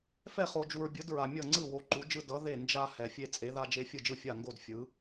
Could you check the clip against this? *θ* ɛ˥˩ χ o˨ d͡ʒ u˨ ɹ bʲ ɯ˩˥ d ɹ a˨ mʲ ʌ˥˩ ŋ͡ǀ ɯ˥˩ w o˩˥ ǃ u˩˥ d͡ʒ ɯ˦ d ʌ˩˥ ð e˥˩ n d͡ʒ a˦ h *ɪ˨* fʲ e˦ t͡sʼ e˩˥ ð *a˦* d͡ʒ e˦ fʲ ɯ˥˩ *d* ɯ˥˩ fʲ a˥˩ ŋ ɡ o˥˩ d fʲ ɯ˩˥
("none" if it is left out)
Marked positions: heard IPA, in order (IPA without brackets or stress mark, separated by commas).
f, ɛ˨, a˦, d͡ʒ